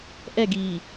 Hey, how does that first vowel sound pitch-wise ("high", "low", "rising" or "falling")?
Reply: falling